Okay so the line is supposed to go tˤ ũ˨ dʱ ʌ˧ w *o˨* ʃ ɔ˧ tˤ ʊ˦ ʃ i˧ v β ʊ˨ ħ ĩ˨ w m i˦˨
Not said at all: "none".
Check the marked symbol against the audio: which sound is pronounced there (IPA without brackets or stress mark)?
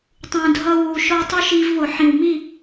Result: u˨